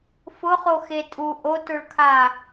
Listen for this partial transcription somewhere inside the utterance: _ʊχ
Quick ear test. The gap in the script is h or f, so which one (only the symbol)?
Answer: f